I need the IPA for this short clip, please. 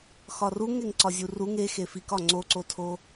x ɒ r u ŋ e ŋ ǀ ɒ zʲ u r u ŋ e x e f i k ɒ ŋ͡ǀ o ǀ o tʰ o

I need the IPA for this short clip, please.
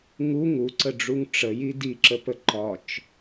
ŋ u ŋ u ǀ ə ɖ͡ʐ u ŋ ʈ͡ʂ ə j i d i ǁ ə p ə ǃ ɒ t͡ʃ

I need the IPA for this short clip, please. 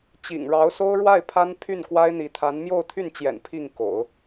t͡ɕ ḭ˨˩ ŋ ɻ ɑ˧˥ ʊ̯ s o˥ ʊ̯ ɻ w a˥˩ ɪ̯ pʰ a˥ n pʰ y˥˩ n k w a˥ ɪ̯ n̪ i˧˥ t̪ʰ a˧˥ n m j o˥˧ ʊ̯ t̪ʰ y˥˩ n t͡ɕ j ɛ̰˨˩ n pʰ i˥˩ ŋ k o̰˨˩˦ ʊ̯

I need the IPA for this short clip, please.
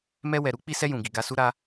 m ɛ˧ w ɛ˨ ɾ u˨˦ k͡p i˧ s ɛ˧ j ũ˨ ɡ i˨ ɡ a˧ s u˦ ɾ a˦

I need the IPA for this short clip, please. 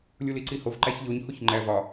lʲ u l i ǀ i h o v ǃ æ ç ʎ o ɲ h u ç ŋ͡ǃ æ v ɒ

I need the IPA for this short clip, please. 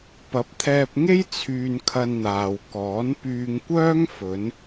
p ɐ˨˥ p̚ t̪ʰ ɛː˧ p̚ ŋ e˥ j t͡sʰ yː˧ n kʰ ɐ˧ n n̪ aː˨ w k ɔː˨˥ n p yː˧ ŋ kʷ œː˥ ŋ f ɵ˨˧ n

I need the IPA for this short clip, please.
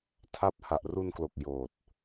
tʰ a˦˥ p̚ h a˨˩ ʔ r u˧ n k l o˨˩ k̚ j oː˨˩ t̚

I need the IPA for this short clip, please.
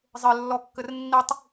zˤ ɘ lː ɔ kː ɘ r nː i tˤ

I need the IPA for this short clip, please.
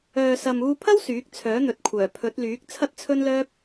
œː˨ s ɐ˨ m uː˧ pʰ ɐ˥ w s yː˨˥ k̚ t͡sʰ œː˨˥ n̪ ɵ˨ t̚ kʷʰ œː˨˩ pʰ ɵ˨˥ t̚ l yː˨˥ k̚ t͡sʰ ɐ˥ t̚ t͡sʰ ɵ˥ n l œː˥ p̚

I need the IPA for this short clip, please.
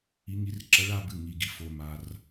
i˧˥ ŋ i˧˥ r ǁ ʌ˧˥ ɭ a˥˧ b ɨ˥˩ ŋ i˨ ɡ i˨ f o˨ m a˨ r

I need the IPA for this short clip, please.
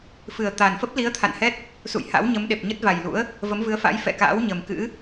f ɨ˨˩ ə̯ t̪ a˨˩ n f ə˦˥ p̚ l i˨˦ ə̯ t̪ʰ a̰˧˨ n h ɛ˦˥ t̚ | s ṵ˧˨ j h a̰˧˥ w ɲ ə˨˦ m ɗ e˨˩ p̚ ɲ ə˦˥ t̚ v a˨˩ j l ṵ˧˥ ə̯ | v ə˨˦ m v ɨ˨˦ ə̯ f a̰˧˥ j f ɛ̰˧˨ k a̰ː˧˥ w ɲ ə˨˩ m k ɨ̰˧˥

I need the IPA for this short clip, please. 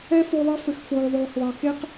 ɛ˦ f o˧ ðˤ i˧ f ɘ˨ x f oː˨ ðˤ oː˨ x ðˤ e˨ x e˦ q

